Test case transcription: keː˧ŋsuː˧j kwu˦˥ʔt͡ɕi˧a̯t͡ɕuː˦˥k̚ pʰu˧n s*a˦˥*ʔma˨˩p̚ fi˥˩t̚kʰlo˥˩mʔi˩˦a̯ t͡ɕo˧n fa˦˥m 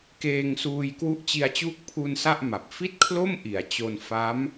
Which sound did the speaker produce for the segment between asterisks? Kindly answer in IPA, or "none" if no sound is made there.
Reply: a˥˩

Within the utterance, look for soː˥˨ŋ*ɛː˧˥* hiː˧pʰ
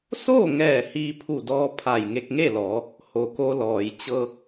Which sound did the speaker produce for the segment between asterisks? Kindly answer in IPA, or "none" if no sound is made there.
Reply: ɛː˧˩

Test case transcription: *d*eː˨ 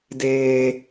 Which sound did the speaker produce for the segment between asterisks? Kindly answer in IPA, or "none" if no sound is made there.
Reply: d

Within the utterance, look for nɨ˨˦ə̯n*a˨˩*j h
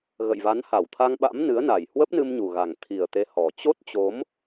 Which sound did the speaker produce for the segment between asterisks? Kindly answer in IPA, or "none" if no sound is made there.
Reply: a˨˩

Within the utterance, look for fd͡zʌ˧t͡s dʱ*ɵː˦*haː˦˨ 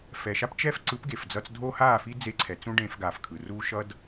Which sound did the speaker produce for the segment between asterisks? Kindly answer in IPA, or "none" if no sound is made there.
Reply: oː˦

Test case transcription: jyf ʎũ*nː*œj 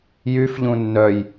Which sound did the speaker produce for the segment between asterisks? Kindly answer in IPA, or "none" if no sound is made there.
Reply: nː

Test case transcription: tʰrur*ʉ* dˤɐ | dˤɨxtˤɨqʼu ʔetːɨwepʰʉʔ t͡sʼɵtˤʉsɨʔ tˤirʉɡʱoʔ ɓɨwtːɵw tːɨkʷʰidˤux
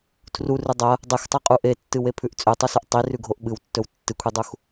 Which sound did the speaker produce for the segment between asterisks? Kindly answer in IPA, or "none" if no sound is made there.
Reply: ʉ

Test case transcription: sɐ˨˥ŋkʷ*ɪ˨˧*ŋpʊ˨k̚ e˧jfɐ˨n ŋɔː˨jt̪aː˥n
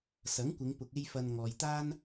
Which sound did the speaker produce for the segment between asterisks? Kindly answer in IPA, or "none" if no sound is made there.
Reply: ɪ˨˧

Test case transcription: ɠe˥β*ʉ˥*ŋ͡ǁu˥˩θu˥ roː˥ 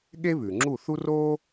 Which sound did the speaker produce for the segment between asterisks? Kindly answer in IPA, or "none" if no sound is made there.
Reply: ʉ˩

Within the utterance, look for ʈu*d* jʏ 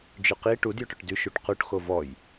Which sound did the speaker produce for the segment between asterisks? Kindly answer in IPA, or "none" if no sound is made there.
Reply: d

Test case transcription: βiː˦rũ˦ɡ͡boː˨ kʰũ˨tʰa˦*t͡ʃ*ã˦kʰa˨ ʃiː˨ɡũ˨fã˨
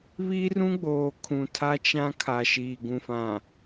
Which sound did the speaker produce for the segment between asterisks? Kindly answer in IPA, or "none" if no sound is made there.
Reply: t͡ʃ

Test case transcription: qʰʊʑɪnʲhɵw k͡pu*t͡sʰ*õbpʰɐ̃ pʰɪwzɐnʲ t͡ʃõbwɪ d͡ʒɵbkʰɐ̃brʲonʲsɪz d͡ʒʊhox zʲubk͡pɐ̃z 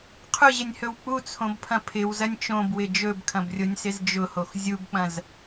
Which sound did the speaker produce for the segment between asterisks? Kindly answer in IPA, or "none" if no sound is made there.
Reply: t͡sʰ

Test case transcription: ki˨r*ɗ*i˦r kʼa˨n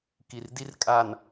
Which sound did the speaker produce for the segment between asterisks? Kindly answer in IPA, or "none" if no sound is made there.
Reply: d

